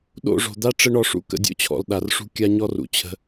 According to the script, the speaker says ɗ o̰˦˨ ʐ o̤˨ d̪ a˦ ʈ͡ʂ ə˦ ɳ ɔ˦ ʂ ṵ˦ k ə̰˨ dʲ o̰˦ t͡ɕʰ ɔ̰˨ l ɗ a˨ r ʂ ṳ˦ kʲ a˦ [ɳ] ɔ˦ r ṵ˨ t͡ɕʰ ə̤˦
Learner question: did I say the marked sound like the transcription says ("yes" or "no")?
no